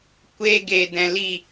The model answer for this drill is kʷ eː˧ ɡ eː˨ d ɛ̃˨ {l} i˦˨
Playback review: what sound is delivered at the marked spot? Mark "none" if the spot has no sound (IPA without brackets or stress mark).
l